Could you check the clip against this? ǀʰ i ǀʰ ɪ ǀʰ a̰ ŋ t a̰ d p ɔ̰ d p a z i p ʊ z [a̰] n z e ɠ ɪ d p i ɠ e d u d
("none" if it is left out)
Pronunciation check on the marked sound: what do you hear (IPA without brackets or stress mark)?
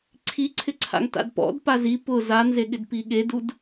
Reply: a